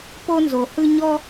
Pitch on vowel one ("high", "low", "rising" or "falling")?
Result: high